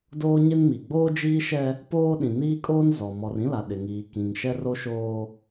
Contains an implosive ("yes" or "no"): yes